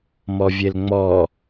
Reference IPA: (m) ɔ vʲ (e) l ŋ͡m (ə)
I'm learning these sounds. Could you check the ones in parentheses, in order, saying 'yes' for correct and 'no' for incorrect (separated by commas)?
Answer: yes, yes, no